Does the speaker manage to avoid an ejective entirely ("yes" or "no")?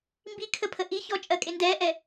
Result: no